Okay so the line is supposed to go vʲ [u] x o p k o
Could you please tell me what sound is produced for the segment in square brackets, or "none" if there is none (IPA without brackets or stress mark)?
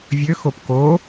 ø